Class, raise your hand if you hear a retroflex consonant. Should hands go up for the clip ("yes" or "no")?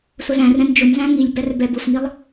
no